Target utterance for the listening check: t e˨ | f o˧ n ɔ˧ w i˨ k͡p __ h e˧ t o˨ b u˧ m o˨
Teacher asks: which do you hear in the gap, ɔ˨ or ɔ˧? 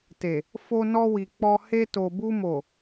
ɔ˧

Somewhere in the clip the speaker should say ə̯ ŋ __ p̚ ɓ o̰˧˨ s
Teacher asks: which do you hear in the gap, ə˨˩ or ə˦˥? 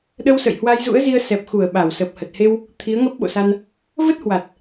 ə˦˥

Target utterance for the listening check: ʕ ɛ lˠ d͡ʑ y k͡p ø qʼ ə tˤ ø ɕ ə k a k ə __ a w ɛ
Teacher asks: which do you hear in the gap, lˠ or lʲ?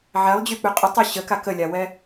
lʲ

